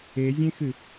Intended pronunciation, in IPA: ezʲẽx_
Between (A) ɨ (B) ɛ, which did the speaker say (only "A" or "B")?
A